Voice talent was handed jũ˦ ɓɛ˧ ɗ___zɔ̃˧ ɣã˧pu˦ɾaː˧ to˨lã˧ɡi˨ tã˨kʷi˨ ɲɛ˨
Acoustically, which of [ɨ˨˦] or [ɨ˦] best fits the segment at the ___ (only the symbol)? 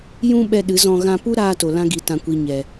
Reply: ɨ˨˦